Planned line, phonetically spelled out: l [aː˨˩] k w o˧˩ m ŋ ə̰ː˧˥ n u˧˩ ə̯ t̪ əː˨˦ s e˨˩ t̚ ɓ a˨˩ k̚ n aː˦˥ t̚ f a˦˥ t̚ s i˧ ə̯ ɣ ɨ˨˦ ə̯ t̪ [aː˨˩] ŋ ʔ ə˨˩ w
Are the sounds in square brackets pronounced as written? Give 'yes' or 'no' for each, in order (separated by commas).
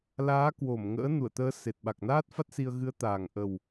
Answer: no, yes